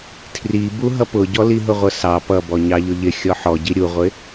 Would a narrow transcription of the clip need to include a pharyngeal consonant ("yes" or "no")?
yes